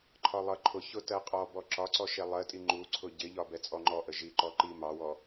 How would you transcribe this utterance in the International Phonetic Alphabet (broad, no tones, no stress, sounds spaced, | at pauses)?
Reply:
ǃʰ ɒ lˠ ʌ ǃʰ ʊ ç ʊ t ɜ qʼ ɔ b ɔ ǁ ɒ ǀ ɔ ʃ ɛ lˠ ɜ tʼ i ŋ͡ǃ u ǀʰ ʊ ɟ ɪ ʎ ɒ b ɛ t͡sʼ ɔ ŋ͡ǃ ɔ ʔ ə ʒ i ǃ ɔ ǃ i m ɑ w ɔ